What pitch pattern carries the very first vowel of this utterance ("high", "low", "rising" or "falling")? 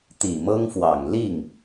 low